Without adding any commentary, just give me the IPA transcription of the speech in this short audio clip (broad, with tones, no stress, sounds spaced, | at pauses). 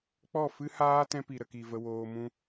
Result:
k͡p ɔ˦˨ f ɨ˦ h aː˦ t ɛ̃˦ p i˨ ɾ ə˨ k i˨ v ə˧ w oː˧ m ũ˦